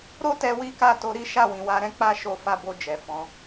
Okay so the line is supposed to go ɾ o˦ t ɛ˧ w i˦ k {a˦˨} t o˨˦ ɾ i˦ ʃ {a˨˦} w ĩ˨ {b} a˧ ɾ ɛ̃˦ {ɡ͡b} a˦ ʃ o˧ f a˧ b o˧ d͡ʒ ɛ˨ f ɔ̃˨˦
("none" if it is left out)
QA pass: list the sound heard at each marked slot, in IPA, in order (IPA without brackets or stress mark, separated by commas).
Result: a˦˨, a˦˨, w, k͡p